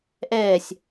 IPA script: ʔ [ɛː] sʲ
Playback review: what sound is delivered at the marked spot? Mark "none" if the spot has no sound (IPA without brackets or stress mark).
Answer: ɛː